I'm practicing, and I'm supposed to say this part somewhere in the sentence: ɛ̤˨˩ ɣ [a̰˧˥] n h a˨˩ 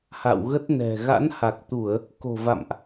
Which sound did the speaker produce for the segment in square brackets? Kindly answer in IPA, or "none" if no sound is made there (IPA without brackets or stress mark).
a̰˧˥